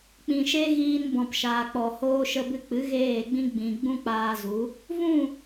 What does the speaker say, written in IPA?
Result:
k͡p ĩ˨ ʃ e˦ ɣ iː˧ n b ɔ̃˨ p ʃ aː˨ k͡p ɔ˨ h oː˧ ʃ ə˧ b ɨ˧ k͡p ɨ˨˦ ɣ eː˦˨ ɡ͡b ĩ˦ ɡ͡b ĩ˨ ɡ͡b ũ˦ k͡p aː˧ z u˨˦ | v ũ˦˨

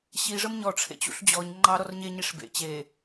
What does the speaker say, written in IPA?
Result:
ɕ i ʐ ə m ɲ ɔ ʈ͡ʂʰ ḛ t͡ɕ ṵ ɬ d͡ʑ ɔ ɲ ŋ͡ǃ ɑ ɾ ɔ r ɲ e ɲ i ʂ b ḛ t͡ɕ e

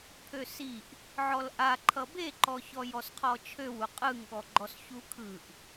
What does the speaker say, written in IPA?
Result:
pʰ ø s i ʔ | ʕ ɔ l ʔ a ǃʰ ʌ b e ǃ ɔ ç ɔ j ɔ s qʰ ɔ t͡ʃʰ ø w u qʼ ɯ ŋ ɠ ɔ ɡ͡ǃ ɔ s ç u kʰ ɯ ʔ

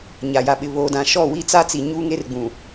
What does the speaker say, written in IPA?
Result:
ɲ a˨ j a˨ ɓ ɪ˨ β oː˨ d ã˨ ʃ ɔ˦˨ w i˦ t͡s a˦ t͡s i˨ ɲ uː˦ ŋ e˦ r ɡ͡b ũ˨

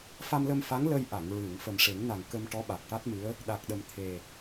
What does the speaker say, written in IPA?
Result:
f a˧ m l ə˧ m f a˧˥ ŋ l ə˧ j ʔ a˨˩˨ ŋ ɹ ɨ˨˩˨ ŋ f ə˨˩ m ʂ e˨˩˦ ŋ n a˨˩ ŋ k ə˧ m ʈ ɔ˧˥ ɓ a˨˩ k̚ ʈ a˦˥ t̚ m ɨ˧˥ ə̯ | ɗ a˨˩ k̚ ɗ ə˨˩ m t̪ʰ e˨˩

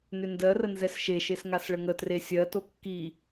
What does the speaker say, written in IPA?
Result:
n ʏ n d ɜ r ə n z ɛ s ʃ e ʃ e s ŋ a s ɭ ə ŋ ə t r e sʲ ɜ t o kː i

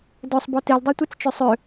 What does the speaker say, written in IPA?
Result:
d œ sˤ b ɔ t e l dˤ œ tʷ ɛ t͡s t͡ʃ ø sˤ ø

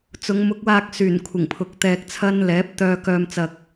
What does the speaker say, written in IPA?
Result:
t͡s ʊ˨˧ ŋ m ʊ˨˥ k̚ w aː˧ k̚ s yː˨˩ n kʷʰ ɪ˨˩ ŋ pʰ ʊ˨ k̚ t̪ ɛː˧ k̚ t͡sʰ ɐ˥ n l ɛː˨˥ p̚ t̪ œː˧ k œː˧ m t͡s ɐ˧ k̚

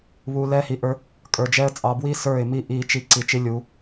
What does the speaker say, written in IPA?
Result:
β u˨ l ɛ˦ h i˨ ʔ ə˞˦ | kʼ ə˞˨ d͡ʒ ɛ˦ ə̯ t͡sʼ ɑ˨ b w i˦ s ə˞˦˨ ɪ̯ m i˦ ʔ i˨ t͡ʃ i˨ ǀ i˨ t͡ʃ i˦ lʲ u˨˦

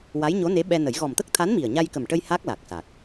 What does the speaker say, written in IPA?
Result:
w a˧˥ j ɲ o˧˥ n e˧˥ ɓ ɛ˧ n ə˨˩˦ j ɣ ɔ˨˩ m t̪ ə˦˥ k̚ t̪ʰ a˧˥ n m i˨˩ ə̯ ɲ a˧ j k ə˨˩ m ʈ ə˧ j h a˦˥ k̚ l a˨˩ k̚ s a˨˩ k̚

